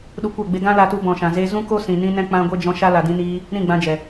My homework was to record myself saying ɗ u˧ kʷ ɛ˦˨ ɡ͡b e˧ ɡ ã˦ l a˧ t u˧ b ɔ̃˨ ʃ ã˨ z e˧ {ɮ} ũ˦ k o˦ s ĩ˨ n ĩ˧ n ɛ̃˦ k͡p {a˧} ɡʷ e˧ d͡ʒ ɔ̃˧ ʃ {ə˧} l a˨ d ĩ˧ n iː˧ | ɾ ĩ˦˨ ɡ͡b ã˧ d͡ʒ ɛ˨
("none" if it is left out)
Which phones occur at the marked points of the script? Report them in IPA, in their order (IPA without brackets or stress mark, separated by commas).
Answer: z, ã˧, a˧